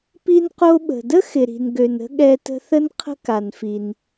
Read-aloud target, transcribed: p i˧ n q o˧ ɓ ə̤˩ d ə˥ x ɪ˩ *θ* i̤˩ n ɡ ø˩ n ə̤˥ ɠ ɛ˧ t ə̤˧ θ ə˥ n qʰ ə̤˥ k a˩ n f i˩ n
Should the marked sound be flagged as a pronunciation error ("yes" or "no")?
yes